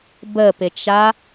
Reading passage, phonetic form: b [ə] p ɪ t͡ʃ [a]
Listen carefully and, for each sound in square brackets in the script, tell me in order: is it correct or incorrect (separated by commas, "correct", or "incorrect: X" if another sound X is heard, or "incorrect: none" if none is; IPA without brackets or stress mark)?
correct, correct